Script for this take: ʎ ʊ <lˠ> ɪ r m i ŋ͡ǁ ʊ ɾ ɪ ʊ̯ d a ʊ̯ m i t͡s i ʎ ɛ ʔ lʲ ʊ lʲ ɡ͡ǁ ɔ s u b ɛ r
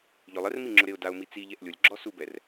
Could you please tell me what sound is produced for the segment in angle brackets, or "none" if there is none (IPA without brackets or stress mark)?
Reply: lˠ